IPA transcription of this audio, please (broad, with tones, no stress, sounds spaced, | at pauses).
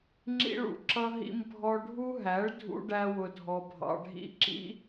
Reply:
ŋ͡ǁ ḭ˧ ɭ ṵ˨ ǁ ʌ˧ ɦ ḭ˧ m bʱ ɔ˧ ɖʱ u˦ ɦ æ˨˦ ɭ dʱ ṵ˦ ɖ æ˦ w ʊ˧ dʱ ɔ˧ bʱ ɑ̰˧ ɖʱ ḭ˦˨ ǁ ḭ˦